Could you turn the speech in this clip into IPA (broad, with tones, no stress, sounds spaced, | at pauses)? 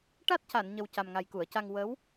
ʈ a˦˥ t̚ c a˨˩˨ n ɲ ə˨˩ w c a˨˩ m ŋ a˨˩ j k u˨˩˨ ə̯ c a˧ ŋ w ə˧˥ w